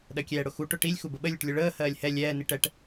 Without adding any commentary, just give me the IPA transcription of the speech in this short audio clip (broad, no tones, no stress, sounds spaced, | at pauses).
ɗ ɜ kʲ ɛː ɽ ʊ x u ʈ ʊ ʈ i lʲ x u b ə ɓ ə lʲ ʊ ʈ lʲ ʊ ɭ əː h ɜː lʲ h ɛ lʲ ɛː n i ʈ ɛ ʈ